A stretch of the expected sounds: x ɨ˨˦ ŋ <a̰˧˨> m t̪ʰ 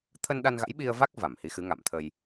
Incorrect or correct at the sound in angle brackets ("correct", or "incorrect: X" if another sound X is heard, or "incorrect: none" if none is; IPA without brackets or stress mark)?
correct